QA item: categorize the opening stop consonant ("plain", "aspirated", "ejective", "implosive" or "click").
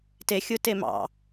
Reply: plain